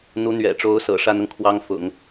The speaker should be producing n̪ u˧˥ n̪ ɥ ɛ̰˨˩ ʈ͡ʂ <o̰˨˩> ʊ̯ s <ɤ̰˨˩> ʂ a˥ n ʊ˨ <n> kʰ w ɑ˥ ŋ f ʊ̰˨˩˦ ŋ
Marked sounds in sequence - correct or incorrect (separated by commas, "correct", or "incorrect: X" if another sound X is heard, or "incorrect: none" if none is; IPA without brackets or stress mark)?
incorrect: o˧˥, correct, incorrect: ŋ